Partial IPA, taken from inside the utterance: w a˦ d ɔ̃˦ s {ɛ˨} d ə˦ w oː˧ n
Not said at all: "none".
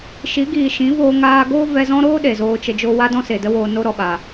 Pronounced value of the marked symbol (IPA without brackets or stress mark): e˨